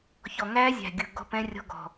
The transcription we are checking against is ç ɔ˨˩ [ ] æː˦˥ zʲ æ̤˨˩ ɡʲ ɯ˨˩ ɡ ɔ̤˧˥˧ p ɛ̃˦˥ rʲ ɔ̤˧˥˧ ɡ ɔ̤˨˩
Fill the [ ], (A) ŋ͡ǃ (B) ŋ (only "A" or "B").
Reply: B